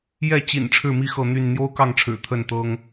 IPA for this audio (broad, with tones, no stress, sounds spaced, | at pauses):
j ɛ˥˨ t͡ɕ ḭ˨˩ n ʈ͡ʂʰ ɻ̩˥˨ m i˥˨ x ɤ˥˨ n̪ y˥˨ n n̪ j o˦ ʊ̯ k ɑ˥˨ ŋ ʈ͡ʂʰ ɻ̩˨˩ t̪ʰ ə˥˨ n t̪ ɤ˦ ŋ